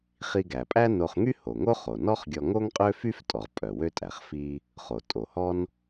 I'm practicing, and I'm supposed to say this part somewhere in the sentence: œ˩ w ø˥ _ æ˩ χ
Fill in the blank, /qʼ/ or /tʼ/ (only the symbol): tʼ